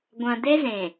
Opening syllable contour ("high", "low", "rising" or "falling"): low